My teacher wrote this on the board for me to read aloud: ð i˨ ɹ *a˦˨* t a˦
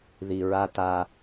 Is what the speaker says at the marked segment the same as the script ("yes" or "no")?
no